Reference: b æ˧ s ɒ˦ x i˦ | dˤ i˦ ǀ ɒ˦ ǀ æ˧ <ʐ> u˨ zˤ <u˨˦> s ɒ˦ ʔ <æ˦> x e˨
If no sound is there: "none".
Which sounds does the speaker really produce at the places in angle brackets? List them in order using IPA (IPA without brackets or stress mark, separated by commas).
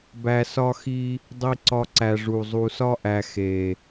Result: ʐ, u˨, æ˧